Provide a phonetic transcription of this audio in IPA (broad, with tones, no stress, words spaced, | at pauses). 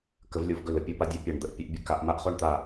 kə˨˦vlʲo˨˦vɡɵ˧˩ lə˨˦pʲɔ˥pa˥ dʲa˥pʲa˧˩ɳ d̪ə˥ʔpʲə˨˦ʔ bʲə˥ ka˨˦ʔma˥ʔχo˥ɳ t̪a˧˩